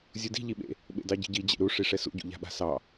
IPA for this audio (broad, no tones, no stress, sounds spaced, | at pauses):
zʲ u d i̤ ʎ i ɓ ḛ | ɓ ḛ d ɑ ɟ i̤ ɟ i d͡ʑ ḛ ɾ u ʂ i ʂ ɛ s ṵ ɟ ṵ ʎ a̤ ɓ a̤ s ɑ